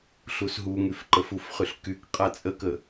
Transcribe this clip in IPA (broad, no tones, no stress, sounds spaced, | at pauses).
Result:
ɬ u s ɦ u ŋ y f ǃ ə f u f χ y ɬ k y k qʼ a t͡sʼ ə k ə